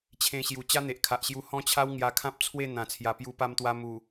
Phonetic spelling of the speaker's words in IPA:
t͡ɕʰ ẽ˧ ɕ j u˨˩ t͡ɕ a˦ n̪ e˨ ʔ kʰ a˨ ʔ ɕ j u˧ h ɔ̃˦ t͡ɕʰ a˦ w ŋ j a˧ kʰ ã˦ p̚ t͡sʰ w e˥˧ n̪ ã˨˩ t͡sʰ j a˨˩ p j u˧ p a˧ m t̪ w a˧ m u˨˩

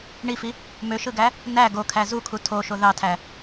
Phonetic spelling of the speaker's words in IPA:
ɳ i f i | m ø ʃ ɯ ɡ æ | n æ ɡ o kʰ æ z u kʰ u tʰ o ʃ o ð ɑ tʰ æ

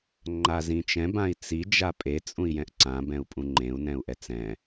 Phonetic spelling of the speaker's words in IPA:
ŋ͡ǃ a z ĩ t͡ʃ ɛ̃ b ã i̯ t͡s i d͡ʒ a pʼ e t͡sʼ ũ i̯ j ɛ̃ ʔ ǀ ã b ɛ̃ u̯ pʼ ũ ŋ͡ǃ ẽ u̯ n ɛ̃ u̯ ʔ ɛ t͡s ɛ̃

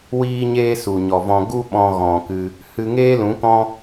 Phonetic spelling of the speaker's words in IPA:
w iː˧ ɲ eː˧ s u˨ ɲ ɔ˨ v ɔ̃˧ ɡ u˦ ɓ ɔ̃˧ ɣ ɔ̃˨ k ɨ˧ | h ɨ˧ ŋ eː˦ l ũ˨˦ k ɔ̃˦

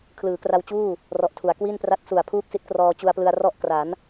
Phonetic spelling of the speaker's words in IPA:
kʰ l ɯː˩˦ k r a˧ w t͡ɕ uː˥˩ | r ɔ˨˩ ʔ tʰ u˩˦ a̯ k w i˥˩ n p r a˦˥ t̚ s u˨˩ a̯ pʰ uː˥˩ k̚ s i˦˥ t̚ k r ɔː˧ t͡ɕ u˧ a̯ p l ɯ˧ a̯ r ɔ˥˩ ʔ k r a˩˦ n

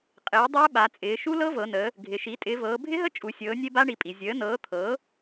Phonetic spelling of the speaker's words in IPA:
qʼ ɪː˩˥ dˤ əː˦˥ ɓ a˩˧ t͡sʼ ɪː˩˧ ʃ u˦˥ l ɤ˦˥ v ɤ˩˧ n əː˩˧ | ɡʱ ɪ˩˧ ʃ i˩˥ tʼ ɪː˩˧ v ɤː˩˧ bʱ ɪ˦˥ ɦ ə˦˥ t͡ʃʼ u˩˧ sʲ ɤː˩˥ nʲ e˦˥ b a˦˥ ɳ i˩˥ pʼ i˩˧ zʲ əː˩˥ n ɤː˩˥ t̪ʰ ɤː˩˥

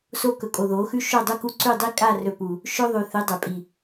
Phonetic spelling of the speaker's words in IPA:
s o˦ k ɵ˨ kʼ o˨ ð oː˨˦ x ʉ˦ ʃ o˦˨ dˤ u˦ k u˦ ǀ ʉ˦˨ dˤ i˦ kʼ a˦˨ r ɵ˨ p u˨ | ʃ ɵ˦ ðˤ ʉ˨ θ ɨ˨˦ dˤ e˨ pʼ i˨

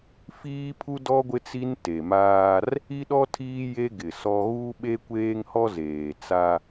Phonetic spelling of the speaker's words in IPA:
f iː˦ pʰ u˦ d ɔ˦ ɡʷ ɪ˦ t͡s i˦ n t e˨ m aː˦ r | i˦ ɗ ɔ˦ tʰ iː˦ j e˦ ɡ ɪ˨ s ɔ˦ ɣ u˦ ɓ e˦ kʷ eː˦ ŋ h ɔ˦ z eː˨ t͡s a˦

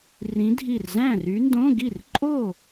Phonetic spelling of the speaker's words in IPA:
r ĩ˨˦ dʱ i˧˩ r z æ̃˥˩ r y˨˦ n d õ˧˥˧ ɡ i˥˩ r ǃʼ o˥˩

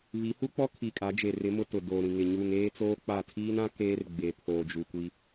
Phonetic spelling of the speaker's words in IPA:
β i˨˦ h u˦ k͡p ɔ˦ kʰ i˨ kʼ a˨˦ d͡ʒ e˨ r ɪ˨˦ m ʊ˦ t ʊ˨ d oː˨ ɾ ĩ˨ ŋ ɪ˨ ɲ uː˨ ŋ eː˦ t͡s oː˦ k͡p a˦˨ tʰ iː˦ n ã˦ k eː˦ r ɡ͡b e˨ pʰ oː˨ d͡ʒ u˨ kʷ i˦

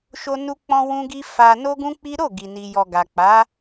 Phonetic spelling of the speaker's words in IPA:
ʃ o˦ n u˦ k͡p ɔ̃˦ w ũ˦ ɡ i˦ f a˧ n o˦ ɡ ũ˦ k͡p i˦ ɾ o˦˨ ɡ i˨ n i˨ j ɔ˨ ɡ a˨ k͡p a˨˦

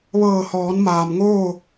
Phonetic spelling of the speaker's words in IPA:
ʋ ɤː˧˩ h ɔː˩˧ n m aː˩ m ŋ oː˥˨

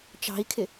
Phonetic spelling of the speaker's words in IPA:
t͡ʃ ɑ̤ i̯ kʰ ɪ

